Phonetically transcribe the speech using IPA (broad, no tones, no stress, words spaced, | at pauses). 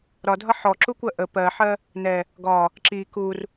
ɾɒdʱʌ ħɔǁukʷɜ ʔə pɜħɜ | nɛ | ɡɒ | ǁi kur